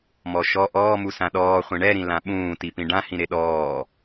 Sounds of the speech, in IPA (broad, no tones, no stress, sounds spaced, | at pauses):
m ɔ ʃ ɔ ʔ ɔː m u s ã ɗ ɔː χʷ ĩ ɳ ɛ ɾ ĩ l ã ɓ ũː t i p ĩ ɖ ã h ĩ ɾ e ɗ ɔː